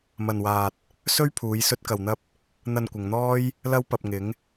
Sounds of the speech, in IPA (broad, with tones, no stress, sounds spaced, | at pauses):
m ɐ˧ n w aː˧ t̚ | s ɵ˥ ɥ pʰ uː˨˧ j s ɵ˥ t̚ k ɐ˧ w n̪ ɐ˥ p̚ | n̪ ɐ˧ n kʷ ɪ˨ ŋ n̪ ɔː˥ j | l ɐ˥ w p ɐ˧ p̚ ŋ ɪ˨˧ ŋ